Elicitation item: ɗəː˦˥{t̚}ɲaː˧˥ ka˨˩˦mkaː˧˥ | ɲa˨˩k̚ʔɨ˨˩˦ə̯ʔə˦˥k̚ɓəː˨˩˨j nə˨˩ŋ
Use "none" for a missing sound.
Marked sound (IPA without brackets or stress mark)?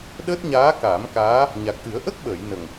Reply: t̚